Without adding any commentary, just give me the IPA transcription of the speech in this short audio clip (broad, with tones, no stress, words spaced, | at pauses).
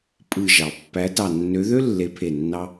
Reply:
pʼɯ˧˩ ʒɑ˩pːæ˨˦tɑ˧˩ nːø˨˦ ðø˦ lːe˨˦pʰe˧˩nːɑ˦